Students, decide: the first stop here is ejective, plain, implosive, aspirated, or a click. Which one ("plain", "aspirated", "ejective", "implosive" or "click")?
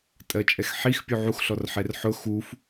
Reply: ejective